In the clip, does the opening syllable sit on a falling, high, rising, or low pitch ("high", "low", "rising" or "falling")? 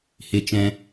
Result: high